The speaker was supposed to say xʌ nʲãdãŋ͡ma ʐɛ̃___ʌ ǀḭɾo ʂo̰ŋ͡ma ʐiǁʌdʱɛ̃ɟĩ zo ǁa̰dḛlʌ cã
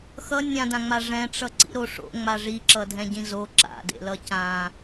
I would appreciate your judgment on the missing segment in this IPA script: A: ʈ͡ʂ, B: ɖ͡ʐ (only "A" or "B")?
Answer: A